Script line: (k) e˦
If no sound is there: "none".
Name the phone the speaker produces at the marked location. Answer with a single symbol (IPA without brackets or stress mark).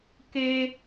k